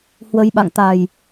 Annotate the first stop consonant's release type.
implosive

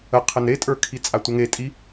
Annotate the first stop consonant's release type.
aspirated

